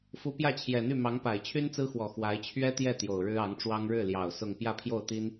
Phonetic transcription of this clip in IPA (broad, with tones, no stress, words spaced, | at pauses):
fu˧˥pjä˥˩t͡ɕʰjɛ˨˩n̪y˥˩ mɑ˧˥ŋpa˨˩ɪ̯ t͡ɕʰy˥nt͡sɹ̩˥xwɔ˨˩ xwa˧˥ɪ̯ t͡ɕʰɥɛ˥t̪jɛ˥˩ t̪jo˨˩ʊ̯ ɻɻ̩˥ɑ˧˥ŋʈ͡ʂwɑ˥ŋ ɻɻ̩˥˩ljɑ˨˩ʊ̯ sʊ˥˧ŋ pjä˥˧pʰjo˥˩ʊ̯t̪i˥n